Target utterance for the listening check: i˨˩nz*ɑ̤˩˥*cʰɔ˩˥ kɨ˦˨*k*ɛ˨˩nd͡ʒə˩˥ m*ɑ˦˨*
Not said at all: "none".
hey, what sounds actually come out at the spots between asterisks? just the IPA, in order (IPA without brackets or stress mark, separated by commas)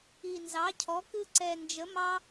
ɑ˩˥, ǀ, ɑ˦